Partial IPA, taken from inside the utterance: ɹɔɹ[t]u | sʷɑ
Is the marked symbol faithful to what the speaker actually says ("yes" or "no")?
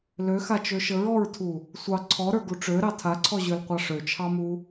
no